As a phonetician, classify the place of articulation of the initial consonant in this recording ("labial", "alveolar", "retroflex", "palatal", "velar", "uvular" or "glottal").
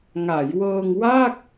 velar